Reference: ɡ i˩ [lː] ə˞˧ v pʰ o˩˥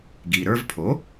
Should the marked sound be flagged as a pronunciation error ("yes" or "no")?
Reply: yes